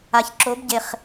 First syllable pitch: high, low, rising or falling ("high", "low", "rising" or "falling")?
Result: low